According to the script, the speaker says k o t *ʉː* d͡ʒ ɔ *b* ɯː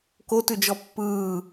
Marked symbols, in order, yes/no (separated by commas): no, no